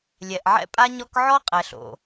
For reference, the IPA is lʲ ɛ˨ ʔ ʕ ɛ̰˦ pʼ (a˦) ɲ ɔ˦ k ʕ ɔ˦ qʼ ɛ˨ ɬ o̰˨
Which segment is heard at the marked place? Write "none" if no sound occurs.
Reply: a˦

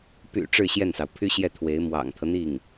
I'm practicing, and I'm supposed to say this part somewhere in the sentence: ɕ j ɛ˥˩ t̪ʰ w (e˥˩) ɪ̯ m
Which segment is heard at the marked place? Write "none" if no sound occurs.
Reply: e˧˥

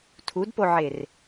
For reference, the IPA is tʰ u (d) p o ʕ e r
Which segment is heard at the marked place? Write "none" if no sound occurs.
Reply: d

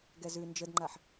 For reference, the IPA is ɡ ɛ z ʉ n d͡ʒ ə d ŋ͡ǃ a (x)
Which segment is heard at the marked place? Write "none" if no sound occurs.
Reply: ħ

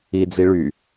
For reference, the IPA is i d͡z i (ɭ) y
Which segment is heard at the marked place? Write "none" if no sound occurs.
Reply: ɭ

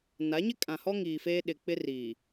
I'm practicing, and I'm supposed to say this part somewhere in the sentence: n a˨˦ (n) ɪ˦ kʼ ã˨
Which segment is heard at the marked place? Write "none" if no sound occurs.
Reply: ɲ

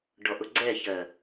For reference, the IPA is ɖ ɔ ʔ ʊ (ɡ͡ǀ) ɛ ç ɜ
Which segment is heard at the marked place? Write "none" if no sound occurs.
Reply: ɡ͡ǀ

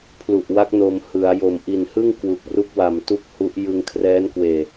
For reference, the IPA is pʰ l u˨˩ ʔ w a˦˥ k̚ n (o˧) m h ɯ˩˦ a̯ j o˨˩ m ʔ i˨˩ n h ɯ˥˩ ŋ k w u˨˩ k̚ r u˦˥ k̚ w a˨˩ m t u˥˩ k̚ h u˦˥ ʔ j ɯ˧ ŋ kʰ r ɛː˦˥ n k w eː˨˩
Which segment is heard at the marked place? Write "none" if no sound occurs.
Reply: o˧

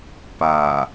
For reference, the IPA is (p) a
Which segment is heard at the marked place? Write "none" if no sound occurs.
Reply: p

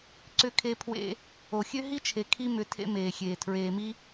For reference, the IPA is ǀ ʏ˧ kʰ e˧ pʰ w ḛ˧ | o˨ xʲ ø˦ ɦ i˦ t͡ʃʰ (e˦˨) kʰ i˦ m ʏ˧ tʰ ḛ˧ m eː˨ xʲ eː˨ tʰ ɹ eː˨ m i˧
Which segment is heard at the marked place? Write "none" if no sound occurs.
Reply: e˨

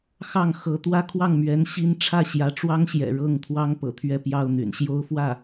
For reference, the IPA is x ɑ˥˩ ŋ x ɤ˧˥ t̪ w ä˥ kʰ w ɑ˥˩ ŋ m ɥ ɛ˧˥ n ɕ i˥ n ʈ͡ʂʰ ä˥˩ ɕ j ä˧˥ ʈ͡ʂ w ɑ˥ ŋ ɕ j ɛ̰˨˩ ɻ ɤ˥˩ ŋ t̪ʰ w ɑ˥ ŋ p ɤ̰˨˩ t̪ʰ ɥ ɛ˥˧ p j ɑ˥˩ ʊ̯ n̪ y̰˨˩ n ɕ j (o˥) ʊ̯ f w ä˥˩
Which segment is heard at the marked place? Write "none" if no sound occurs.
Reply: o˥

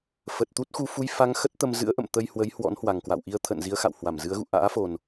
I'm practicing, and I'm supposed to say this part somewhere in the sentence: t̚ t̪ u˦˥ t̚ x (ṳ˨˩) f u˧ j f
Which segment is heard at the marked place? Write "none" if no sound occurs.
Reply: u˧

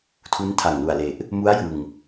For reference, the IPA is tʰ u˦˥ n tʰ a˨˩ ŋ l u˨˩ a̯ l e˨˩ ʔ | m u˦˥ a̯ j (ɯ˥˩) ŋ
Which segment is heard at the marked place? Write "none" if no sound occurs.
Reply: ɯ˨˩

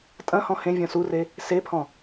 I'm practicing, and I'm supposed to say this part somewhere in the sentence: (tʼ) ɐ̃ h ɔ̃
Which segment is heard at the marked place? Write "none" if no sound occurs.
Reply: tʼ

